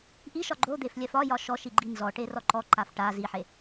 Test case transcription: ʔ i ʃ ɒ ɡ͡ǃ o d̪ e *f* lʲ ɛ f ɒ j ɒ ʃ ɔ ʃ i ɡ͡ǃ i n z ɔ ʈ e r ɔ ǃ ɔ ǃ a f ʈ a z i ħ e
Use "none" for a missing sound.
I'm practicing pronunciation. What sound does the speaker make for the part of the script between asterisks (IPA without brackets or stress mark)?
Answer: f